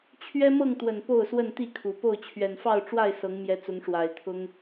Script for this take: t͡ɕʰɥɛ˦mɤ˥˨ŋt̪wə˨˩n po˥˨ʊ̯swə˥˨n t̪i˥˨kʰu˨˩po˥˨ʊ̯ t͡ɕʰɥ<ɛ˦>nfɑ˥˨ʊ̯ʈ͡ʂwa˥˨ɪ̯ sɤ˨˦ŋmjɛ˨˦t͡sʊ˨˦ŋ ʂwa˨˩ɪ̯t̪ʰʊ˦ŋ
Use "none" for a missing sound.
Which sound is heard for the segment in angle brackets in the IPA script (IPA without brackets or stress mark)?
ɛ˨˩